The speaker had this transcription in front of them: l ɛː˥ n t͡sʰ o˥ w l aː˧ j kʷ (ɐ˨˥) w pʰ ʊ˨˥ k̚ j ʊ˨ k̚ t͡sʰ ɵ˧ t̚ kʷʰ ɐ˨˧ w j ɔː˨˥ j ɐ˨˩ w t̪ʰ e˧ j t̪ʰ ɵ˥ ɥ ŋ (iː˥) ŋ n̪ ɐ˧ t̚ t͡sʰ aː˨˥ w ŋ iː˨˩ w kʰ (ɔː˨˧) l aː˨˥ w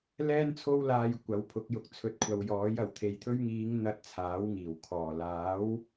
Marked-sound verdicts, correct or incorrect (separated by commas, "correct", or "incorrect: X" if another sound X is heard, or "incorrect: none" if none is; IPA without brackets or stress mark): correct, incorrect: iː˨˧, incorrect: ɔː˨˩